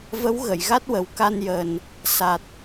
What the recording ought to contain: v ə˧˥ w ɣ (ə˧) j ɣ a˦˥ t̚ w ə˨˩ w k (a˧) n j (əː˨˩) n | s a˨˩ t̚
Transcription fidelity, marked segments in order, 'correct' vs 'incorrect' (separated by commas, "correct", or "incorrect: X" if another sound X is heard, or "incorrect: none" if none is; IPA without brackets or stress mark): incorrect: ə˨˩˨, correct, correct